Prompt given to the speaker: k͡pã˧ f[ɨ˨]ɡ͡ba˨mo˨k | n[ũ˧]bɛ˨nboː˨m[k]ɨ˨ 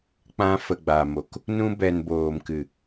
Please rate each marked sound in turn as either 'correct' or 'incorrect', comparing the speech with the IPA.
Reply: incorrect, correct, correct

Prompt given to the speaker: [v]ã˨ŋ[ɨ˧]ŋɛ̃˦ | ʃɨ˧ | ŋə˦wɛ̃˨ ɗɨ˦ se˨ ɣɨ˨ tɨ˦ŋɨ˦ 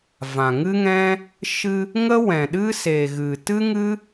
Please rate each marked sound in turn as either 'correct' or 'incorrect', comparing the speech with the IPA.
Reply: correct, incorrect

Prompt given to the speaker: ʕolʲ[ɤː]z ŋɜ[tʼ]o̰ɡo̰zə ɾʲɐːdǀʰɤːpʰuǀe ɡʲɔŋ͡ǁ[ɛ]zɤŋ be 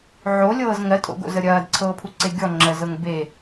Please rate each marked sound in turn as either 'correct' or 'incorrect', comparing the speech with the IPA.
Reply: correct, correct, incorrect

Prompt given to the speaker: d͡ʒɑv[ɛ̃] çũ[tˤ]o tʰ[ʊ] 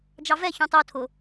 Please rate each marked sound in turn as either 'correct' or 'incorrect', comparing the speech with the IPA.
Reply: incorrect, correct, correct

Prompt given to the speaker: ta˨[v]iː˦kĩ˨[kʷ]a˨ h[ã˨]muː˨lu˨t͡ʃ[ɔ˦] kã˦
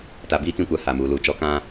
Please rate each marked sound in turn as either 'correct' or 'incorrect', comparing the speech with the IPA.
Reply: incorrect, correct, incorrect, correct

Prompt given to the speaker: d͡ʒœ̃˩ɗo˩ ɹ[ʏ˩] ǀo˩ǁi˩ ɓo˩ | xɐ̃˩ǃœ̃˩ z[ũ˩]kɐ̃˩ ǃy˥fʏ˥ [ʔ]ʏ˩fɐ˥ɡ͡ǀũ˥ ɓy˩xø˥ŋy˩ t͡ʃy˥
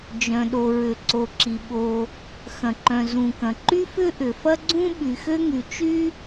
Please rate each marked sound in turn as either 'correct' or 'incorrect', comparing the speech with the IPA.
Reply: correct, correct, correct

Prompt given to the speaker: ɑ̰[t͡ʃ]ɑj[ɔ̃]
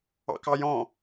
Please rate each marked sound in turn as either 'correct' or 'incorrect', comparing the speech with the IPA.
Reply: incorrect, correct

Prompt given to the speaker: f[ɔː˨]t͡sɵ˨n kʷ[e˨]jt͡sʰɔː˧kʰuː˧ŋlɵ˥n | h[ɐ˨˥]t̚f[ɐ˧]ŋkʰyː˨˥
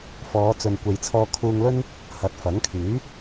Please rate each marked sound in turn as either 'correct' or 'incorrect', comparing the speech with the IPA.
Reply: incorrect, correct, correct, incorrect

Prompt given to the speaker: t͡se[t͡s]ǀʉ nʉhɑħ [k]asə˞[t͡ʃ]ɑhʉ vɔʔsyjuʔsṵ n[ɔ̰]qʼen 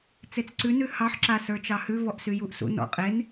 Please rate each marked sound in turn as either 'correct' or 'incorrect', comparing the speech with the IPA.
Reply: correct, incorrect, correct, correct

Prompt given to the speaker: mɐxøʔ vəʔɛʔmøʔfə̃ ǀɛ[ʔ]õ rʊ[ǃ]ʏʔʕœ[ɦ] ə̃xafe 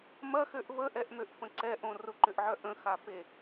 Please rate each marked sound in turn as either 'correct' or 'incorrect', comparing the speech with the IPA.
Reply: correct, correct, incorrect

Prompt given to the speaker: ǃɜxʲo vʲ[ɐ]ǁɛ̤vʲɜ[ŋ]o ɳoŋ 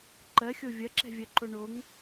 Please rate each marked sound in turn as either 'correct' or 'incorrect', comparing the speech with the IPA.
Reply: correct, incorrect

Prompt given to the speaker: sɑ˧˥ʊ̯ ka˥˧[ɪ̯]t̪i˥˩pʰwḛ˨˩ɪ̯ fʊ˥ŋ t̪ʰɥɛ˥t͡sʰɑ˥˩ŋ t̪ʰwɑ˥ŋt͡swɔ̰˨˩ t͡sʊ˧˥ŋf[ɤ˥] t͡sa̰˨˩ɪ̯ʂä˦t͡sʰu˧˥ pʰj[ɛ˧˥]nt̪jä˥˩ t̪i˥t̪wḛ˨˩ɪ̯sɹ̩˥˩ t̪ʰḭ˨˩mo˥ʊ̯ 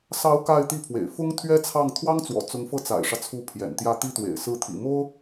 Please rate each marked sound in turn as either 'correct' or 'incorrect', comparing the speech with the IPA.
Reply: correct, incorrect, incorrect

